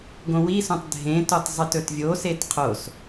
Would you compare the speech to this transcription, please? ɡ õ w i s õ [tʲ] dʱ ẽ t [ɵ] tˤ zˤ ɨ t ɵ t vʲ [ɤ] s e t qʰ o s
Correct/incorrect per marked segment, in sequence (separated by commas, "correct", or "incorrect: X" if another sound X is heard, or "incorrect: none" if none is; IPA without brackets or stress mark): incorrect: tˤ, incorrect: o, incorrect: o